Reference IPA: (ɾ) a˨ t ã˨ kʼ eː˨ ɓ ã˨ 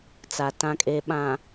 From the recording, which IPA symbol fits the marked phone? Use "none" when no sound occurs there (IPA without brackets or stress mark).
t͡s